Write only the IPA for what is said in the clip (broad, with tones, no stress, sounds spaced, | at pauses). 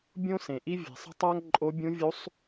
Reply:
bʲ õ˥ s ẽ˩ ʔ i˥ vʲ e̤˩ sˤ ə̤˥ tˤ a˥ ŋ ǃʼ o˧˥ bʲ ũ˧˥ vʲ u˧˥ sˤ